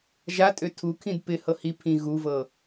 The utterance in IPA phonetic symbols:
ʒ a tʼ ø tʰ u kʰ ĩ d p ɪ h ɤ h i pʰ ĩ ɣ u v ɤ

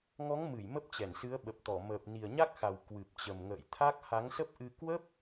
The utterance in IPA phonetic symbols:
ŋ ɔ˨˦ ŋ m ɨ˧˩ j m ə˦˥ p̚ t͡ɕ ɛ˧˩ n s ɨ˨˦ ə̯ ɓ ə˨˩ p̚ t̪ ɔ˧˩ m əː˨˩ p̚ n i˨˩ ə̯ ɲ a˦˥ k̚ x a˨˩ w k w ɨ˨˩ p̚ t͡ɕ ə˨˩ m ŋ ə̰ː˧˨ j t̪ʰ a˦˥ k̚ h a˨˦ ŋ s ə˦˥ p̚ ʔ ɨ˧ k w ə˦˥ p̚

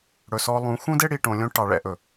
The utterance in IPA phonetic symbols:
ɽ ɵ˨ s ɔ˧ lˠ ũ˨˦ x ũ˦ d e˦ ɽ i˨ ʈ õ˨ lʲ õ˦ ʈ ɑ˨ ɭ ɛ̰˦ ʔ ɵ˨

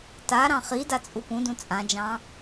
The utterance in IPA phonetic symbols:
t a ɾ ɑ̃ χ i d a t͡sʼ u p ũ d ũ t͡sʼ ã d͡ʒ ɑ̃

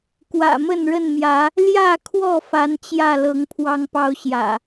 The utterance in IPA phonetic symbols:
k w ä̰˨˩ m ə˥˨ n ɻ ə˥˨ n m j ä˨˦ | l j ä˥˨ kʰ w ɔ˥˨ f a˨˦ n t͡ɕ j ä˥˨ l ɤ˨˦ ŋ pʰ w ɑ˦ ŋ p ɑ˦ ʊ̯ ɕ j ä̰˨˩

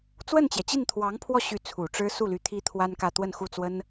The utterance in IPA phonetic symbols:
t͡s w ə˥˩ n t͡ɕ j ɛ˩ t͡ɕ i˥˩ n t̪ʰ w ɑ˧˥ ŋ pʰ w ɔ˥˩ ɕ y˧˥ t͡sʰ u˨˩ ʈ͡ʂ ɻ̩˥ s u˥˩ l y˧˥ t̪ʰ i˥ t̪ʰ w a˥ n k ä˥˧ t̪ w ə˥˧ n x u˥˩ t͡s w ə˥ n

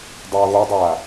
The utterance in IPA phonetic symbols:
dˤ oː ɣ o dˤ aː

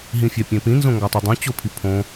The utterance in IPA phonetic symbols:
ɦ ĩ fʲ æ pʲ ẽ p ĩ n z õ ŋ ɡ ɒ tˤ i dˤ ũ t͡ɕ o pʰ i pʰ õ

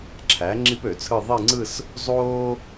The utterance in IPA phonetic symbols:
ǁʰ æ˩˥ ŋ͡ǁ i˥ p ø˨˩˦ t͡sʰ ɯ˥˧ ðˤ i˥˧ ŋ͡ǀ ɯ˥˧ s | zˤ oː˥

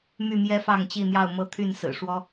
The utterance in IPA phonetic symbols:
m y˥˨ m j ɛ˦ f ɑ˥˨ ŋ t͡ɕ i˥˨ n̪ j ɑ˥˨ ʊ̯ m ɤ˦ t̪ʰ y˥˨ n s ɹ̩˨˩ ʂ w ɔ˦

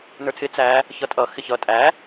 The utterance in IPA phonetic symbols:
n ə˞ tʰ ɪ t͡s æ | ç ʌ tʼ ʌ x ɪ ç ʌ tʼ æ

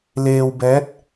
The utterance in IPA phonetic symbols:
l eː˧ w b ɛː˧˥ t̚

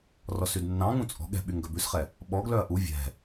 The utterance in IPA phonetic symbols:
r ɔ s y d nː ɑ̃ ŋ ũ t͡sʼ ɔ̤ ɠ ɛ̤ ɓ y ŋ ɡ œ b ʉ s χ ɛ | ɓ ɔ ɡ l œ ɐ̯ ʔ u vʲ ɛ̤

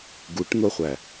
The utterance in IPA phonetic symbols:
ɡ u ʈ n̪ o χʷ æ

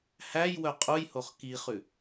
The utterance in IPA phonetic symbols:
h æ j w œ qʼ u j h o χ k i χ ʉ

